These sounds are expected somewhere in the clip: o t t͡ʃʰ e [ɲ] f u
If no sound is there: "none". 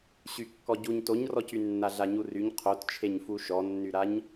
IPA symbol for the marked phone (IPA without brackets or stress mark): ɲ